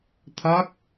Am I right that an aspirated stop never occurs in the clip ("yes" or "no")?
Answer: no